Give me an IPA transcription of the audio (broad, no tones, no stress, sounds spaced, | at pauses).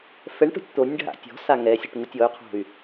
f ɛ ɳ ʈ o̤ tʲ t̪ o nʲ ɖʱ a̰ tʲ ɔ̤ s a ŋ ɛ sʲ o ʈ ŋ u tʲ ɔ y̯ qʰ o̤ y̯